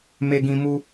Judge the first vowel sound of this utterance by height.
mid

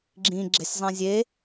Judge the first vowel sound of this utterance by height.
high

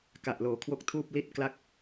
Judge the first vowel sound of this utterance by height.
low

